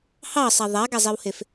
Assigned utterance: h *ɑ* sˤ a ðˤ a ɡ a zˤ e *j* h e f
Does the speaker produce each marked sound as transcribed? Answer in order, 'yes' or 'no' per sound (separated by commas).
yes, no